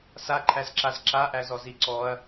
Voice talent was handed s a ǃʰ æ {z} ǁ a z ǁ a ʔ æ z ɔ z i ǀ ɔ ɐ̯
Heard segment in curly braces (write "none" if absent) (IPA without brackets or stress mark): z